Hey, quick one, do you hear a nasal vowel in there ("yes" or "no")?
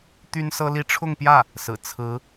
no